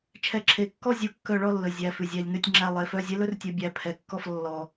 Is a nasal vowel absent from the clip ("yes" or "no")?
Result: yes